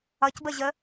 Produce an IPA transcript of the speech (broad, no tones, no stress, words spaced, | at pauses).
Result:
ʌcbəʑə